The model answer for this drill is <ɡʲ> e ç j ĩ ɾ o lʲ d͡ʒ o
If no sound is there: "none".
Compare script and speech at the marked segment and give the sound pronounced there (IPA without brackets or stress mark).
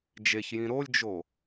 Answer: d͡ʒ